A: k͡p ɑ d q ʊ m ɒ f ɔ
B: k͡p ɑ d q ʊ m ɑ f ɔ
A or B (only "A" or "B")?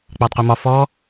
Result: A